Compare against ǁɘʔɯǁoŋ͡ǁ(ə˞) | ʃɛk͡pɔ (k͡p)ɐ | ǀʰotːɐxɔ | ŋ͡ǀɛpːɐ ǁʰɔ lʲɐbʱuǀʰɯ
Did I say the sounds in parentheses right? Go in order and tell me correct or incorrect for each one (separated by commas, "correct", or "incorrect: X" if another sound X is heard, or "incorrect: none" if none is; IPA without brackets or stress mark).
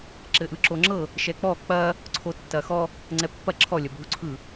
incorrect: ɤ, correct